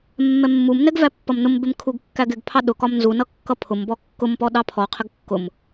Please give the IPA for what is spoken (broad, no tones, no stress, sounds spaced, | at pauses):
mː ɛ mː u m n ɛ ɡ v æ pː ʌ m n ʊ m b ɪ m kʰ u ɡ kː æ ɡ ɪ ɡ pʰ ɑ ɗ ʊ k ɒ m n z u n ʌ kː ʌ pʰ ʊ m b ɔ kː ʊ m p ɔ ɗ ɑ pʰ ɔ qʰ ɪ ɡ kː ʊ m